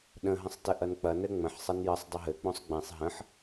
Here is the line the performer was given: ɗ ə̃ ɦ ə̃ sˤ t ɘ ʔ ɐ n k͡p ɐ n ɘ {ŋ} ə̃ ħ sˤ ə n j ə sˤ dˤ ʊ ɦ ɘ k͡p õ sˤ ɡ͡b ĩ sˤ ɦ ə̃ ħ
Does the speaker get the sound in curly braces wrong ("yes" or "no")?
yes